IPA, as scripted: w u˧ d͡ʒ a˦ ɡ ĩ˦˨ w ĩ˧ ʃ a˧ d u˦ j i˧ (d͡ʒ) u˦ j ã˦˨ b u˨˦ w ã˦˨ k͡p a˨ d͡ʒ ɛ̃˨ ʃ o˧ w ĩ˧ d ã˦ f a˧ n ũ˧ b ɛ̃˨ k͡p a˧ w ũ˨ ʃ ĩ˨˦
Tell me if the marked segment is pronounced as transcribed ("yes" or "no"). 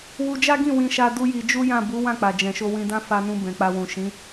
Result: yes